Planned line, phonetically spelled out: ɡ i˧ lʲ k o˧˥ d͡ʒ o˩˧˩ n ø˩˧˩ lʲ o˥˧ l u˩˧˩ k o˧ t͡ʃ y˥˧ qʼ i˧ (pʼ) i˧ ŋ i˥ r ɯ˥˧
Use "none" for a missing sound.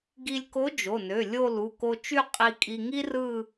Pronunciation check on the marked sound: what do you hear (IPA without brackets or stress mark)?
kʼ